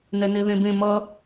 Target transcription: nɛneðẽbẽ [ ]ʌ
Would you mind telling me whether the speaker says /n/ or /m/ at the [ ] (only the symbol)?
m